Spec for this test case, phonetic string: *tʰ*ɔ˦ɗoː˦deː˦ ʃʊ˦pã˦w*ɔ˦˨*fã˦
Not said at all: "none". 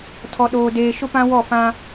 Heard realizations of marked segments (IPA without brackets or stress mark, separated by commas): tʰ, ɔ˦˨